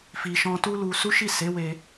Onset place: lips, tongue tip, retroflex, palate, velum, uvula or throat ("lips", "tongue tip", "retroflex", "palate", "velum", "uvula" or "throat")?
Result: lips